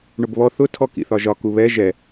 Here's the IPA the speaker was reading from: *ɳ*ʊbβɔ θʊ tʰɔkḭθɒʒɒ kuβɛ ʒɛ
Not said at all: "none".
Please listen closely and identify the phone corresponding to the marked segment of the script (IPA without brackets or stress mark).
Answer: ɳ